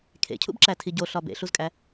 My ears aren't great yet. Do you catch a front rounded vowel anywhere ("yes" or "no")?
no